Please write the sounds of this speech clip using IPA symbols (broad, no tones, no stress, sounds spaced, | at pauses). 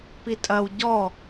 p i tʼ ɐ w ɟ ɔ